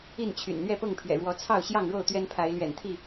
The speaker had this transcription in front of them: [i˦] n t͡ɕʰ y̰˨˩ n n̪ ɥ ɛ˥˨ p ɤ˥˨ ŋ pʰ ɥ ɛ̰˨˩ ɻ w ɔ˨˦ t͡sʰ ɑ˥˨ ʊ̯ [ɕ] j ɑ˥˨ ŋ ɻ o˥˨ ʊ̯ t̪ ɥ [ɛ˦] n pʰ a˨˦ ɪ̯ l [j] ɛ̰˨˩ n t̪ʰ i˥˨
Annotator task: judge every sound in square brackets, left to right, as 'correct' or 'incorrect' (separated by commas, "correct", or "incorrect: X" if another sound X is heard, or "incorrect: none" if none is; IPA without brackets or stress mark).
incorrect: i˥˨, correct, correct, incorrect: ɥ